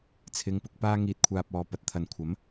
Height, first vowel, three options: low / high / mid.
high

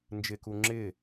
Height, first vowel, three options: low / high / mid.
high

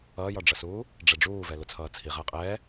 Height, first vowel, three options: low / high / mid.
mid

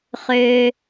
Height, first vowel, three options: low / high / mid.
mid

